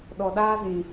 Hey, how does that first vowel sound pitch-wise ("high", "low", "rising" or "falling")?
low